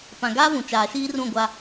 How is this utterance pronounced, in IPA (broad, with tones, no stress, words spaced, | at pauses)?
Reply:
pã˨ɡaː˦vũ˨ t͡ʃaː˨ʃiː˦rũ˦˨ ɡʷa˦